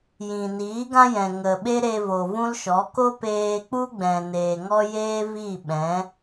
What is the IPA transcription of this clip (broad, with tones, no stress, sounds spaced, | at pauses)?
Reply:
j ĩ˨ n iː˨˦ ɡ ã˦ j ɛ̃˨ ŋ ə˨ ɓ e˦ ɾ e˧ v o˨ v ũ˦ l ʃ ɔ˨˦ k o˦ p eː˧ k͡p u˦ ɡ͡b ɛ̃˨ n eː˨ ŋ ɔ˦ j eː˦ v iː˦˨ ɓ ɛ̃˨˦